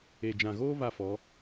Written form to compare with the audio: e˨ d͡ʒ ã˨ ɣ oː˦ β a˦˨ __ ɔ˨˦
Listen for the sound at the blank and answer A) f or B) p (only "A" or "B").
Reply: A